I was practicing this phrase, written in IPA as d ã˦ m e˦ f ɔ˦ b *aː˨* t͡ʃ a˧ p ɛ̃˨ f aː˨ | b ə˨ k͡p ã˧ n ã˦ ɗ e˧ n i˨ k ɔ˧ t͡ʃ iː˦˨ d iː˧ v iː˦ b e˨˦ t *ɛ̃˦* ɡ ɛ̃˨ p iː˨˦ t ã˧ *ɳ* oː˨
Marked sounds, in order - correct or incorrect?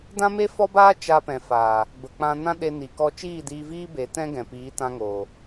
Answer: incorrect: aː˦, correct, incorrect: ŋ

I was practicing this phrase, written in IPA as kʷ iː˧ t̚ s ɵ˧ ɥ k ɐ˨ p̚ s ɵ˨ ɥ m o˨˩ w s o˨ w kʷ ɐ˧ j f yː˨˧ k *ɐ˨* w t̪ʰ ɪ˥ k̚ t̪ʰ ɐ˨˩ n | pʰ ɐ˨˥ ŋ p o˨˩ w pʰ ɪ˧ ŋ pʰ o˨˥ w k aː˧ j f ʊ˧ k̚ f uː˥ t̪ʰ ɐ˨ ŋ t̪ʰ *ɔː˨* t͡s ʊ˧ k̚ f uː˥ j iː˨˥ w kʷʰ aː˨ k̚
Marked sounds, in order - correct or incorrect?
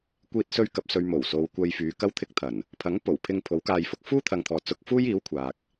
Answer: incorrect: ɐ˥, correct

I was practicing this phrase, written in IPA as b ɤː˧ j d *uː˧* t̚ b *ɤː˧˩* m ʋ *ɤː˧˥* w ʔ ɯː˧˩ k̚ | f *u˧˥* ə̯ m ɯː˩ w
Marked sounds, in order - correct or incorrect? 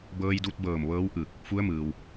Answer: incorrect: u˧, correct, correct, correct

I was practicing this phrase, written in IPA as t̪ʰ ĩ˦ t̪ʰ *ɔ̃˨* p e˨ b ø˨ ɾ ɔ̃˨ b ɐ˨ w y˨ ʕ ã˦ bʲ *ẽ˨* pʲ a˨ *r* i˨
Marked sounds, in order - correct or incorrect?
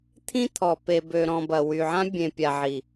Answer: incorrect: ɔ˨, correct, incorrect: ʕ

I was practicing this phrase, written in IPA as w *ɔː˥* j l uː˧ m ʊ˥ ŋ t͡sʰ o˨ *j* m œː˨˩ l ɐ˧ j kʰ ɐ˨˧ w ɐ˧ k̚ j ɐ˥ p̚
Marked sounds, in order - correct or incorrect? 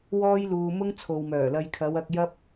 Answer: correct, incorrect: w

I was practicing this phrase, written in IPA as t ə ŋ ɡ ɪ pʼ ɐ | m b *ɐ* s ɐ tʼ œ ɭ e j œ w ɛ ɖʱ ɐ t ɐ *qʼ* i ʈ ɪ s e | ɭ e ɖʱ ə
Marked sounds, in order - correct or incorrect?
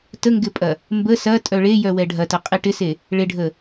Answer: incorrect: ə, correct

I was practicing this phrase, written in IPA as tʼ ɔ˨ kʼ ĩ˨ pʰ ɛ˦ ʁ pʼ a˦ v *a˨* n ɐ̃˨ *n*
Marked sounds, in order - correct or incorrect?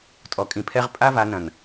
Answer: incorrect: a˨˦, correct

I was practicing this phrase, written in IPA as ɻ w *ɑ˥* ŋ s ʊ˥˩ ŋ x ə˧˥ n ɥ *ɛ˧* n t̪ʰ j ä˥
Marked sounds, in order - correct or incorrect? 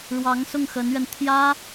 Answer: incorrect: ɑ˧˥, correct

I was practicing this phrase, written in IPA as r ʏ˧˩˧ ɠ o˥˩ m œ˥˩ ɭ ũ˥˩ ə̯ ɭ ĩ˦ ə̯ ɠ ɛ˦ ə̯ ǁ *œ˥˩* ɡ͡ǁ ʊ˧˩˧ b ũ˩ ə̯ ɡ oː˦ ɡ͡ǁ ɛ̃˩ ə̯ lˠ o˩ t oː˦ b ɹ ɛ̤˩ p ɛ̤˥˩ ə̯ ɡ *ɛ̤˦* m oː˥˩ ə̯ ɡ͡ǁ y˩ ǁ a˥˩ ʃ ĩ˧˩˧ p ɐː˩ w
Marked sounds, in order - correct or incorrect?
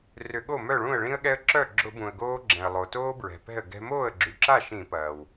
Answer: correct, correct

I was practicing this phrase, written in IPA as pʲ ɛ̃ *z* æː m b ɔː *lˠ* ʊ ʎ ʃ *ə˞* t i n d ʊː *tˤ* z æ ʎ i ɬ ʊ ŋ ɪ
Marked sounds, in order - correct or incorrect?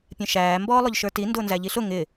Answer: incorrect: ʃ, correct, correct, incorrect: n

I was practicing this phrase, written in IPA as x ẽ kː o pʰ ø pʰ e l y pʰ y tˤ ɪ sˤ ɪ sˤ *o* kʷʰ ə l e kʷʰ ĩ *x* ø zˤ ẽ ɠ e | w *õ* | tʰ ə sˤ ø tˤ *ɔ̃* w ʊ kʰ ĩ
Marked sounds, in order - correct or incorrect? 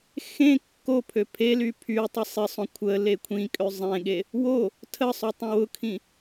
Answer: incorrect: õ, incorrect: kʼ, incorrect: o, incorrect: ə̃

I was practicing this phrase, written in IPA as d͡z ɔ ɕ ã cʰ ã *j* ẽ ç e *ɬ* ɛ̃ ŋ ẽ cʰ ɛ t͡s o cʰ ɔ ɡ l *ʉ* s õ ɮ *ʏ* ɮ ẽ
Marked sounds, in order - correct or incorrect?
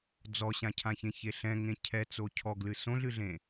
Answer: incorrect: ç, correct, incorrect: ɨ, incorrect: ɨ

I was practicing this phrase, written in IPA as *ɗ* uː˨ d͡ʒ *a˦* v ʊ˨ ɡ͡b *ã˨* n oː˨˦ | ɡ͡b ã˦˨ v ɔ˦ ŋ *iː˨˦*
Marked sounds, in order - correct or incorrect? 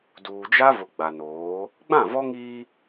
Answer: incorrect: d, correct, incorrect: a˨, incorrect: iː˦

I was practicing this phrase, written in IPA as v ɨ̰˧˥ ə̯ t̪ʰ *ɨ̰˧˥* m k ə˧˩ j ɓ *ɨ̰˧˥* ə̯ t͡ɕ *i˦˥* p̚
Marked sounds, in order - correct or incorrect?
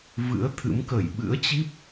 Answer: correct, correct, correct

